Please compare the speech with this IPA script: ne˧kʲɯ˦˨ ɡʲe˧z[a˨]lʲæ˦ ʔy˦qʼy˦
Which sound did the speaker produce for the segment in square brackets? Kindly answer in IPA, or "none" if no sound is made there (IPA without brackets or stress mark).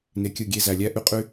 æ˨